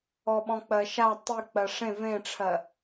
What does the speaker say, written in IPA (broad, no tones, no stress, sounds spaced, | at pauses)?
ɔ ɓ ɔ̃ k͡p ɜ ʃ a tˤ i k͡p ɜ ʂ ẽ v ẽ ʈ͡ʂʰ ɜ